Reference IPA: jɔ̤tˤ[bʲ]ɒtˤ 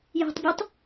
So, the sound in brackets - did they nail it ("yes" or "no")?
yes